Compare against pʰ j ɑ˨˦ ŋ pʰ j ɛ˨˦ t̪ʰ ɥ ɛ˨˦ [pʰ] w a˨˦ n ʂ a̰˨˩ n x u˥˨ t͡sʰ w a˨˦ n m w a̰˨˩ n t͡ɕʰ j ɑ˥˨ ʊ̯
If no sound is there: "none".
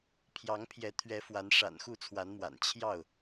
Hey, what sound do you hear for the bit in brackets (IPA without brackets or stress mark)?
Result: f